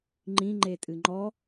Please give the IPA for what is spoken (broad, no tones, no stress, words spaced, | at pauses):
ŋ͡ǃĩŋ͡ǃetʼɨ ŋ͡ǃɔ